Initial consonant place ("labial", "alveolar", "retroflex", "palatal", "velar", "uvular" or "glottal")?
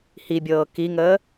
glottal